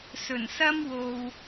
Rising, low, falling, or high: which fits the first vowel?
low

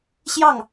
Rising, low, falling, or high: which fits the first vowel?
falling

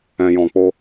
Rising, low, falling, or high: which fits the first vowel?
low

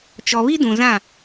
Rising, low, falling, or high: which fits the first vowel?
low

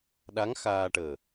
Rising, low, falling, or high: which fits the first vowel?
rising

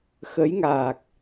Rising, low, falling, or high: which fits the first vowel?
rising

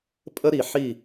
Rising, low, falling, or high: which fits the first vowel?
high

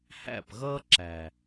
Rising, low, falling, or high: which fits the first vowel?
falling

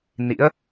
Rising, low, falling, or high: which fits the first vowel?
rising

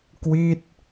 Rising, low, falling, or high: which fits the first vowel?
falling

